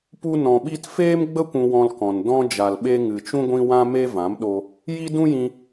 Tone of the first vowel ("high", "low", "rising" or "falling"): high